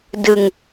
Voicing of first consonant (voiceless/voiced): voiced